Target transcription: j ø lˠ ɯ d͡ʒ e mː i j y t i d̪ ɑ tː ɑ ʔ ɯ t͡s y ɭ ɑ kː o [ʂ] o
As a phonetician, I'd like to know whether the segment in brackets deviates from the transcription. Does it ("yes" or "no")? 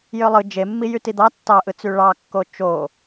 yes